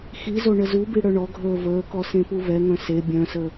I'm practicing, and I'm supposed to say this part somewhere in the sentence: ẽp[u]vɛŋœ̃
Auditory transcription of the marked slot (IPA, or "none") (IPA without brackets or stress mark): u